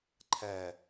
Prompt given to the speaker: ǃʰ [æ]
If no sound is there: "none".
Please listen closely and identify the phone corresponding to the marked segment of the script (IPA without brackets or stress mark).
æ